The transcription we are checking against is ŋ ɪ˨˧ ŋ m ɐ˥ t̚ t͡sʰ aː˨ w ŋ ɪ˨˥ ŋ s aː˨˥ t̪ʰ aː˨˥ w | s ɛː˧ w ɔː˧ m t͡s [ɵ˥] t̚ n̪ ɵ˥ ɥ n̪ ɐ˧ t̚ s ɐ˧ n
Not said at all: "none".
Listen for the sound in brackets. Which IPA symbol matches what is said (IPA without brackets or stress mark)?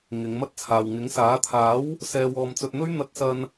ɵ˧